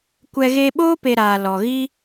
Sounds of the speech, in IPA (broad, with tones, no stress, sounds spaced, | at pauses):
kʷ ɛ˧ ɣ e˧ ɓ oː˦ p e˧ ɾ aː˨ l ɔ˨ ɣ i˦